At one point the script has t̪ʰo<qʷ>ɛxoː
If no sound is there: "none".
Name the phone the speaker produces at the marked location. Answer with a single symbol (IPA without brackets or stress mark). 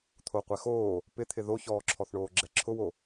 qʷ